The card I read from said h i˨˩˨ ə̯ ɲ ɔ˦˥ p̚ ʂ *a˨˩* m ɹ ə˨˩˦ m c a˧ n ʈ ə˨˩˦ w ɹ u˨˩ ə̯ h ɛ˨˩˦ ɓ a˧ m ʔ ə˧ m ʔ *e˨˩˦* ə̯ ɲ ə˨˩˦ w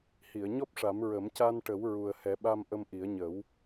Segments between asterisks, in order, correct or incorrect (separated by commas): incorrect, incorrect